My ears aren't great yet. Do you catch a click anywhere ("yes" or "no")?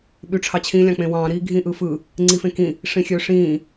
yes